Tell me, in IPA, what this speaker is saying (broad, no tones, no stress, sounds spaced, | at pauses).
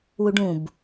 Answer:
w u ɖ ũ b